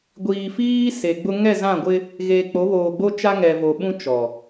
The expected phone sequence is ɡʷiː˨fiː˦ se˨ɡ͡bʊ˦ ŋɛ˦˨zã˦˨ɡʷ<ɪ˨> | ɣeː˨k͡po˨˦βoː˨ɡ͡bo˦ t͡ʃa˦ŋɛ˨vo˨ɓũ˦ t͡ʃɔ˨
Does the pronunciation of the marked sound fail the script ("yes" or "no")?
yes